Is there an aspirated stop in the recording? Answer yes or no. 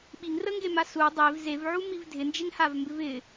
no